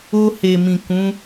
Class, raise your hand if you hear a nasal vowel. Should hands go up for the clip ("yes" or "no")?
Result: yes